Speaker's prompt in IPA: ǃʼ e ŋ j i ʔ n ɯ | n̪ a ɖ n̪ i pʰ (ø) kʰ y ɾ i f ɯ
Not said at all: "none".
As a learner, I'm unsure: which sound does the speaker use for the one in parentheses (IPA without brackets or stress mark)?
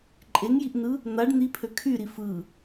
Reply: ø